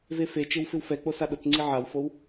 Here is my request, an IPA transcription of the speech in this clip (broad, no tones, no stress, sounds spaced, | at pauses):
v e f e t͡ʃ ɪ w f ɪ w f ɛ k͡p o s a ɗ ʊ t͡s ŋ͡ǀ i ʕ a w f o w